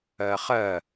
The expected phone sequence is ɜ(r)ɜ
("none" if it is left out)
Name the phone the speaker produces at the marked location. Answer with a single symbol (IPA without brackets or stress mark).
χ